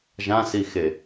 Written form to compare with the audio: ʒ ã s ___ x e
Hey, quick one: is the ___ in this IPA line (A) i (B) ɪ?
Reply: A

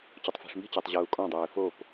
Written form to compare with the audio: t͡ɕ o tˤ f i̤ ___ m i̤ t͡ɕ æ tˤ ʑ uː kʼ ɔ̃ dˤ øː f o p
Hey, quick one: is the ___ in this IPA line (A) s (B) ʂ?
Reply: B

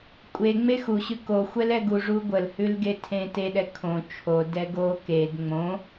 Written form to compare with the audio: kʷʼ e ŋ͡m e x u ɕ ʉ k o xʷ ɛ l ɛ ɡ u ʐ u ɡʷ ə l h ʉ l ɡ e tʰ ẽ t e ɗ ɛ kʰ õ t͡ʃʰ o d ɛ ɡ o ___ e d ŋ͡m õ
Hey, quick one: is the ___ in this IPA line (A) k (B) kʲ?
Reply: A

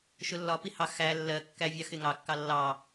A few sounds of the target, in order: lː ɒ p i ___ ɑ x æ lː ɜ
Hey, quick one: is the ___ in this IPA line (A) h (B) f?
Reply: A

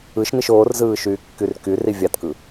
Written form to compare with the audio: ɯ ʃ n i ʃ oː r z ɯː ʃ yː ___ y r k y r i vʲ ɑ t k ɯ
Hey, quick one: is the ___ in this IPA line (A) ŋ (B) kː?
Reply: B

